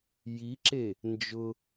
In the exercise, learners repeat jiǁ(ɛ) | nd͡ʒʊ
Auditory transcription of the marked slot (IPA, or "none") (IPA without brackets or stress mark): e